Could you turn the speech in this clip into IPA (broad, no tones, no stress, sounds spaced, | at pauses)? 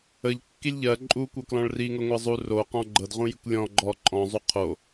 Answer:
ə ʎ kː i lʲ ʎ ɜ ǃʼ u kʷ ɤ k l ɔ̃ ɭ r i ŋ ɤ ŋʷ ɜ zˤ u r o q ɔ̃ ɡ͡ǃ ɤ d ʁ ũ j i kʷ lʲ ɔ̃ ɡ͡ǃ ɔ ǃʼ ɔ̃ zˤ u qʰ o